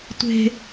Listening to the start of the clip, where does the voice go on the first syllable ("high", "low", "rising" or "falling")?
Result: high